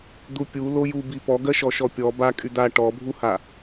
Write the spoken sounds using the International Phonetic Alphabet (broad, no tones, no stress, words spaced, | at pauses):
d̪upʲu lojubi pɔɡɜʃɔ ʃɔpʲɔ ba kʼyd̪a ʈɔbʱuha